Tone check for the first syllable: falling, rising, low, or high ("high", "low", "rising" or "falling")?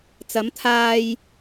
rising